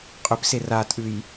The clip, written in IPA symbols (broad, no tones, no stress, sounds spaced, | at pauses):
qʼ ʏ p s e r a tʼ ʉ j